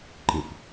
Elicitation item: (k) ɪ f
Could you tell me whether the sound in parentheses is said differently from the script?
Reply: yes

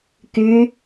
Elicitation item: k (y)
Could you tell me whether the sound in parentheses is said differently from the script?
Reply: no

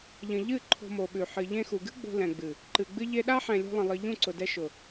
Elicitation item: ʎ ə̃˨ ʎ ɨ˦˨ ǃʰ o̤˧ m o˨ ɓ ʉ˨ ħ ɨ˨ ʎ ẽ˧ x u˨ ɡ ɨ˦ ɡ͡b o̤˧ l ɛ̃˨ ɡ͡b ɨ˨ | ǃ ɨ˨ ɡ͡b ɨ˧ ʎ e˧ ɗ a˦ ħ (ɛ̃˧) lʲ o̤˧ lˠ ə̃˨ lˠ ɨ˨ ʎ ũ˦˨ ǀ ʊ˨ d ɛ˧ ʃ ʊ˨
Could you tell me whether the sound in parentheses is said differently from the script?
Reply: yes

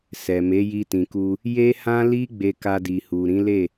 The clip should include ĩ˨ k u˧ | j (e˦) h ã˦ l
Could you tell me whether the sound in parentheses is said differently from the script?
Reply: no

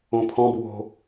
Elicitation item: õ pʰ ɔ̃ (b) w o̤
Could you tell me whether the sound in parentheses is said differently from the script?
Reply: no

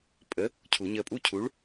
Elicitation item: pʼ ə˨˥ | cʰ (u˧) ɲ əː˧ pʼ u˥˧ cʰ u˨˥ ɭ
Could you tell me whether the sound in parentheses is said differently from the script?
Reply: yes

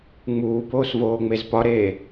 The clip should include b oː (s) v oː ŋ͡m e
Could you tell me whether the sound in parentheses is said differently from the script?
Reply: no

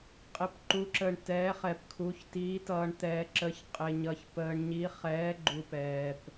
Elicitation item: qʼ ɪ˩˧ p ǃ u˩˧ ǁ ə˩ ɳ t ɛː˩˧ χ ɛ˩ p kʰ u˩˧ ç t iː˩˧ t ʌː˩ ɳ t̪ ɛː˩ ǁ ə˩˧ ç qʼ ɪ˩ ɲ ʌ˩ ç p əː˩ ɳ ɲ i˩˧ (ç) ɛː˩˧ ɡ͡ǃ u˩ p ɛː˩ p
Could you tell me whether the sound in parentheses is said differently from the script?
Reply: yes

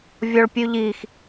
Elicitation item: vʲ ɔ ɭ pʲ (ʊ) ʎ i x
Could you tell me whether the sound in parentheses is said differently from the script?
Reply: yes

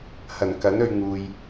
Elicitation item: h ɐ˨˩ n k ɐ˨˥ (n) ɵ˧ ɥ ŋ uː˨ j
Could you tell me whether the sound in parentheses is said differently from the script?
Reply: no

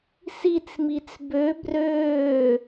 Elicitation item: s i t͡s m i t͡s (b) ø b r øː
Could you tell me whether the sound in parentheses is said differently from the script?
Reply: no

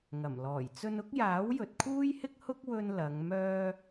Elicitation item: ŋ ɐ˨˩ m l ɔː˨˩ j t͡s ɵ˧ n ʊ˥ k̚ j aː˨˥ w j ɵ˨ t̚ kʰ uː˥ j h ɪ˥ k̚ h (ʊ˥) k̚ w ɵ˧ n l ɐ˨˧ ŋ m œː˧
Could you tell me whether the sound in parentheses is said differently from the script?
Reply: no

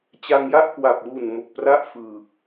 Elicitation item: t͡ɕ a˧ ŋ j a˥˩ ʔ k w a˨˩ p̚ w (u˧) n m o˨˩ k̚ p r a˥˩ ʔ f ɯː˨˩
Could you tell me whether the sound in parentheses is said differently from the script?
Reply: yes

